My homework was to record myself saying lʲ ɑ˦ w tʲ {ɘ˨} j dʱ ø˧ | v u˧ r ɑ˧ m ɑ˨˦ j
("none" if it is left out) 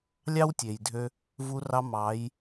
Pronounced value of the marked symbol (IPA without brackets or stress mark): e˨